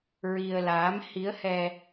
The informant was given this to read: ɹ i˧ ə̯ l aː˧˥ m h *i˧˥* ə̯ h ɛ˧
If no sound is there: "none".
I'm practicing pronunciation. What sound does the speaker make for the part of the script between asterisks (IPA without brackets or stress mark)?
i˧˥